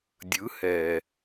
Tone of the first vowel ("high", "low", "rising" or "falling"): rising